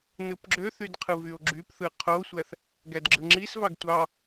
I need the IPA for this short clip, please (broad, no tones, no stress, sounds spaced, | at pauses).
n ɯ p ɡ͡ǁ ø θ y d qʰ ɯ v y o̯ ɡ͡ǁ y p θ ɯ qʰ o sʷ æ θ | ɡ æ d ɡ͡ǁ ɯ ŋ͡ǁ i s v ɑ ɡ tʷ ɑ